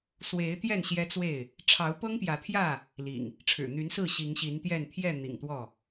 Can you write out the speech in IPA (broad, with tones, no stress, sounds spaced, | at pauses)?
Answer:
s w e˨˦ ɪ̯ t̪ j ɛ˥˨ n ɕ j ɛ˦ t͡s w e˥˨ ɪ̯ | ʈ͡ʂʰ ɑ˨˦ ʊ̯ p ɤ˦ ŋ p j ä˨˦ t̪ʰ j ä˥˨ | l ḭ˨˩ ŋ | ʈ͡ʂʰ ɻ̩˨˩ n̪ y˨˦ n s ɹ̩˥˨ ɕ i˨˦ ŋ ɕ i˨˦ n t̪ j ɛ˥˨ n pʰ j ɛ˥˨ n̪ ḭ˨˩ ŋ t̪ w ɔ˥˨